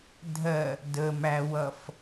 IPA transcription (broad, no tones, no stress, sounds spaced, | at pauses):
dʱ ɜ | d ə m æ w ʌ f